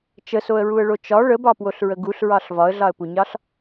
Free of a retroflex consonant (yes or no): no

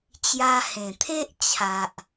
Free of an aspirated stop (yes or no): no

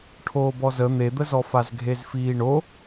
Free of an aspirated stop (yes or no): no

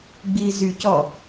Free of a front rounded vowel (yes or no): no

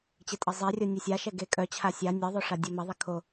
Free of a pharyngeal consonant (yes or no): yes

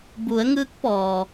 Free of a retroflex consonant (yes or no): yes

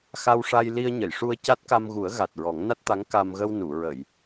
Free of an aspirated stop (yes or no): yes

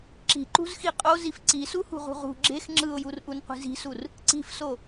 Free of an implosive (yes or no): yes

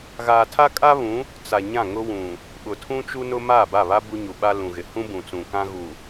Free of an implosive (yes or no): no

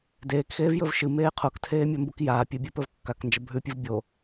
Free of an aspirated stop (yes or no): no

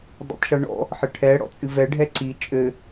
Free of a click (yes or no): no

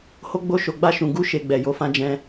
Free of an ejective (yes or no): yes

